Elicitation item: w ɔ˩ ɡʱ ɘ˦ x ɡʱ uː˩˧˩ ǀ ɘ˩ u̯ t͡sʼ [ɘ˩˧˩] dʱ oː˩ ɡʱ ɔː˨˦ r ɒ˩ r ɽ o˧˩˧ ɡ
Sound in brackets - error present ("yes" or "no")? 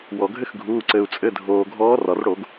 no